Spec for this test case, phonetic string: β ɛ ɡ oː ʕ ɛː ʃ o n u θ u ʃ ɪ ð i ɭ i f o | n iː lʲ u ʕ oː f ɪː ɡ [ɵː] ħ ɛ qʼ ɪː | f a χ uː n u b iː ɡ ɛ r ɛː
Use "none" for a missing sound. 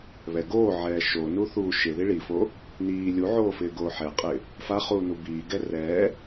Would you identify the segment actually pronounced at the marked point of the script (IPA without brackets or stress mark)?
oː